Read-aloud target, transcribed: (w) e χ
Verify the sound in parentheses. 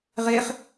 incorrect: ʁ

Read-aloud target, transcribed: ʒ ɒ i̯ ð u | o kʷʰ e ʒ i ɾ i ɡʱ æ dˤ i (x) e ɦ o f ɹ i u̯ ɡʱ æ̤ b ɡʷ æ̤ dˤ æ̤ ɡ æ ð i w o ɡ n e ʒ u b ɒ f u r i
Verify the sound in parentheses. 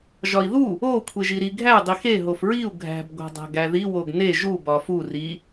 correct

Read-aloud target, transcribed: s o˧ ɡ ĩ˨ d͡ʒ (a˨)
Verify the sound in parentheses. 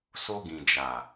correct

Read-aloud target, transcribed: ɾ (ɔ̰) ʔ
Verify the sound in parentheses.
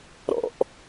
correct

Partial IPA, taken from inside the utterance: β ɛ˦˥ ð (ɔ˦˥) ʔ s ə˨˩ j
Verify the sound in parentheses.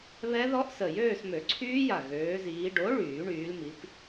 correct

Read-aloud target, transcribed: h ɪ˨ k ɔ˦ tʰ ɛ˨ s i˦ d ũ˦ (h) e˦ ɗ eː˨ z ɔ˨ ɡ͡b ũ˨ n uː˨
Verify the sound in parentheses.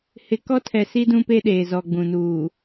incorrect: p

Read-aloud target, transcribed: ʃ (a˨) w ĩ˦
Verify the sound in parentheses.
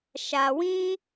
correct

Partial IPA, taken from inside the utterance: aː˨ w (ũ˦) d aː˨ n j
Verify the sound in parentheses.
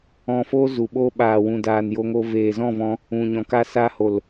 incorrect: ũ˨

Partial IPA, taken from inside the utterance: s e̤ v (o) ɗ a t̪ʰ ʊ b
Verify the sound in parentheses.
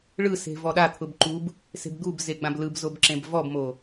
incorrect: ɔ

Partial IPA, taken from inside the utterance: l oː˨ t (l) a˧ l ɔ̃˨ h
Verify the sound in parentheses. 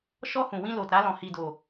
incorrect: ɾ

